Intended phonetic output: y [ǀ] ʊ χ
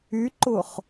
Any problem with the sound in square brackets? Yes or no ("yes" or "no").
yes